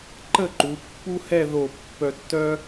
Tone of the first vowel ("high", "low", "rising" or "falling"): falling